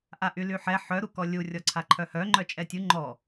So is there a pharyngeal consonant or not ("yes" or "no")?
yes